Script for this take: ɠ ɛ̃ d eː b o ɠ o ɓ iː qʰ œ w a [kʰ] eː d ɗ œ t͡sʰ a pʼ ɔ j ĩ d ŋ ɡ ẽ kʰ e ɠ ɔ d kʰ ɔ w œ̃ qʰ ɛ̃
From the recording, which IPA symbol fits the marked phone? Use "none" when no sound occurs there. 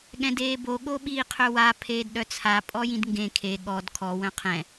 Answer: pʰ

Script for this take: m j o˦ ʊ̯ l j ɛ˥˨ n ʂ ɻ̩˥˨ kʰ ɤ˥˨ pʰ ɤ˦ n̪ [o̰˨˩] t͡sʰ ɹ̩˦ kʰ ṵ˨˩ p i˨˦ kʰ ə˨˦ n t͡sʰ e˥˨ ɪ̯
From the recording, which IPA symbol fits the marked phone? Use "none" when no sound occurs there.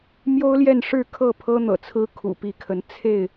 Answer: ɤ̰˨˩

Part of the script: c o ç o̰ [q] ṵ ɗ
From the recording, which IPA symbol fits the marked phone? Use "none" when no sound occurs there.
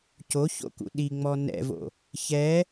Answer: k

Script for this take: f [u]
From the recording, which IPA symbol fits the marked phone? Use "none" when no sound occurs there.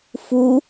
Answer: u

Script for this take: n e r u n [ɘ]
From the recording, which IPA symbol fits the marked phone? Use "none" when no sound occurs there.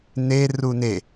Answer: e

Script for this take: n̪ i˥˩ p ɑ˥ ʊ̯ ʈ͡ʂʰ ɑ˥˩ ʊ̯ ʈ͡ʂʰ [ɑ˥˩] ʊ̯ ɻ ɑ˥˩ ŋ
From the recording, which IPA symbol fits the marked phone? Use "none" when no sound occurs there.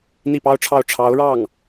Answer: ɑ˧˥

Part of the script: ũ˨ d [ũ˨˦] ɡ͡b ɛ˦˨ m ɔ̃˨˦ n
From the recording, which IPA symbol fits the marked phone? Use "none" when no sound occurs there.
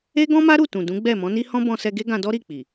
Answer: ũ˨˦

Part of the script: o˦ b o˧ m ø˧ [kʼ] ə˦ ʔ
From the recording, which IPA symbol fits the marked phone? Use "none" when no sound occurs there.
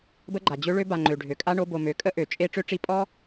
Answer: kʼ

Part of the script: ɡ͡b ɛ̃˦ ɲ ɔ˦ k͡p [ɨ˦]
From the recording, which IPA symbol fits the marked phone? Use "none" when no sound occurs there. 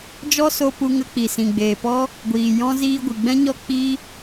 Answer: i˦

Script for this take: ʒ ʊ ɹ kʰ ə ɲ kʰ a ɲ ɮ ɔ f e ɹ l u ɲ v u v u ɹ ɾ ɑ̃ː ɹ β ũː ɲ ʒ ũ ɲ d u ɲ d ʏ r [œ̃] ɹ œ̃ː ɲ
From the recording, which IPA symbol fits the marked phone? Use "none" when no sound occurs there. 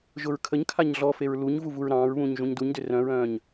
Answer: œ̃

